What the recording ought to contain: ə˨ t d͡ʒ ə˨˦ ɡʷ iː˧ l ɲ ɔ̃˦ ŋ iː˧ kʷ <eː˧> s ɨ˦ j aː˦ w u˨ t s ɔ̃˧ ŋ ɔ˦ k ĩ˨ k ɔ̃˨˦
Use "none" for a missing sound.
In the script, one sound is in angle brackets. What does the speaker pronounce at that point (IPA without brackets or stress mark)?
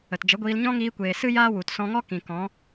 eː˨